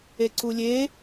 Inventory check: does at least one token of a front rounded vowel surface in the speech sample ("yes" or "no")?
no